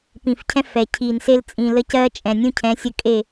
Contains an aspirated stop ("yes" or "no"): yes